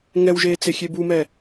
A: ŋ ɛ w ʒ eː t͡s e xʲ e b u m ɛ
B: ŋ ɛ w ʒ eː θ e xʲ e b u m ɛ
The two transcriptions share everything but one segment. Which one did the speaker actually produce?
A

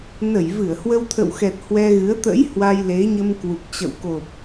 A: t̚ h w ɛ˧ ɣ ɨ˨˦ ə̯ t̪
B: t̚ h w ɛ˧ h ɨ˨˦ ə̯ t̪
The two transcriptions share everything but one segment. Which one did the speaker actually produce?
A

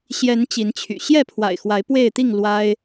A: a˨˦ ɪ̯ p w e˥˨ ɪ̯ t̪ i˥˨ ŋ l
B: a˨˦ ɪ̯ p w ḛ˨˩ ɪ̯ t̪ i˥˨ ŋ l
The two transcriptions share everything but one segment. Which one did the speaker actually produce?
A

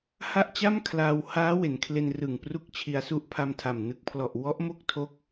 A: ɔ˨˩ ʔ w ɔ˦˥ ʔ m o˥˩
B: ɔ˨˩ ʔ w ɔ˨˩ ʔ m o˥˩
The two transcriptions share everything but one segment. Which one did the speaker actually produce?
A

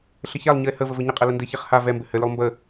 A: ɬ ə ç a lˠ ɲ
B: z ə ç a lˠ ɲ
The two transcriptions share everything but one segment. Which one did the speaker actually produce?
A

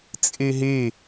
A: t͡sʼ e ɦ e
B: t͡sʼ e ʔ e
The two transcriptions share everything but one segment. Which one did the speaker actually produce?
A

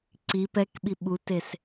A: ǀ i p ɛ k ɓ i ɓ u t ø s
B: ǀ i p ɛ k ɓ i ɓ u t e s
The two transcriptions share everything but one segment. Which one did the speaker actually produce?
B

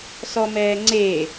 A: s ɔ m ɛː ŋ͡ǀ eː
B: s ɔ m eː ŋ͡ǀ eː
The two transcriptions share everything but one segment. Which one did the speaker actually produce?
A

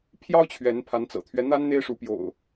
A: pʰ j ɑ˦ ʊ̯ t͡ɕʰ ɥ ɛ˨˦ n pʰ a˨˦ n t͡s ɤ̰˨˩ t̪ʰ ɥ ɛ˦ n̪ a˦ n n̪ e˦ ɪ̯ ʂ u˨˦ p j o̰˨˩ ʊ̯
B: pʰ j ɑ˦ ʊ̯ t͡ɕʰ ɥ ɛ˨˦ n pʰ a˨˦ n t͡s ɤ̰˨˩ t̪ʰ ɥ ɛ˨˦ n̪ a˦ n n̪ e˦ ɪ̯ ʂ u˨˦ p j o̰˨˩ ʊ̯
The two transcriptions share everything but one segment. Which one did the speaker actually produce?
A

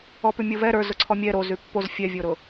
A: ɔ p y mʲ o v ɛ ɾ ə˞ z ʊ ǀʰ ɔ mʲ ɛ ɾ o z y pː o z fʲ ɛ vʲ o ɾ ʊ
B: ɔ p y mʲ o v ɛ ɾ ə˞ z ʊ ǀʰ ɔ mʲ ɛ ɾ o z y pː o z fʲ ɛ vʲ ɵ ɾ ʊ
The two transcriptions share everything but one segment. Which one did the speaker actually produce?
A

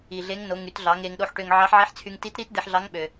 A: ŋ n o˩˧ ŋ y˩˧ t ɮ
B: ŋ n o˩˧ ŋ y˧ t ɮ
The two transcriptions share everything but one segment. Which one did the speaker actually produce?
A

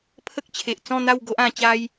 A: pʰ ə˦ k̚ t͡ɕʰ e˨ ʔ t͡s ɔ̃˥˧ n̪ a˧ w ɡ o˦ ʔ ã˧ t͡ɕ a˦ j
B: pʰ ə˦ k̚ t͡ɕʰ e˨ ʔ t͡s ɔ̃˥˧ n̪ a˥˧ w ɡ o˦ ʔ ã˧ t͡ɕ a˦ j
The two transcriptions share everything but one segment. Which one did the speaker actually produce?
B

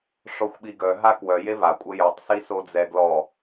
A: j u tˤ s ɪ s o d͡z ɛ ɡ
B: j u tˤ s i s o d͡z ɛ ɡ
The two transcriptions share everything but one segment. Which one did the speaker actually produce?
B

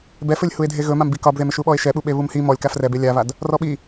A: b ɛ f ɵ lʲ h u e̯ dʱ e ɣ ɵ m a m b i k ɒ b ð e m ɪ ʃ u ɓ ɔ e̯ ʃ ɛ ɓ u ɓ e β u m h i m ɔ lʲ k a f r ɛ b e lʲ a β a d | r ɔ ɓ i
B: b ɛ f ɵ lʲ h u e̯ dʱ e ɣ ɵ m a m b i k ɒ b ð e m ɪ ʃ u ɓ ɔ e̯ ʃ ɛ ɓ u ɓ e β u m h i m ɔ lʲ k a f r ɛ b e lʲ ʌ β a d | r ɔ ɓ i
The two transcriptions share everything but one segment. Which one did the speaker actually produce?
A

